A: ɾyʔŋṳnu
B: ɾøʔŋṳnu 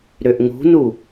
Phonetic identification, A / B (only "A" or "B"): B